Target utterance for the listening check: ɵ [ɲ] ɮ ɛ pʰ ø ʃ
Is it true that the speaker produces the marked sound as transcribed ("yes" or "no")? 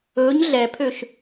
yes